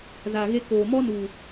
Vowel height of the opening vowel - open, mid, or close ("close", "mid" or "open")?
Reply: open